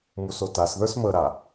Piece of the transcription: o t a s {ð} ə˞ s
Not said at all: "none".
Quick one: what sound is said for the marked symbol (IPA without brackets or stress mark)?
ð